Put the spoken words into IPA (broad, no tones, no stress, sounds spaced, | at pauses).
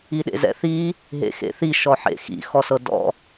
i ɗ ḛ z ɛ̰ θ i | ɦ ḛ x ḛ θ i ʃ ɔ ħ ḛ x ḭ x ɔ s ɤ d ɔ̰